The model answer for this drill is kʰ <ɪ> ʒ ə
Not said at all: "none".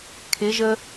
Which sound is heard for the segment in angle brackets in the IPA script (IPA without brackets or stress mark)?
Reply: ɪ